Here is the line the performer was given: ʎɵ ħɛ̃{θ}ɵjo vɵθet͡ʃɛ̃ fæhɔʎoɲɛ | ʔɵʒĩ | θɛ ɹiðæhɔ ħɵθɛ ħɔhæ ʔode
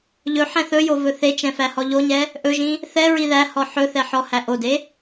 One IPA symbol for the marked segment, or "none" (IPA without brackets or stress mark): θ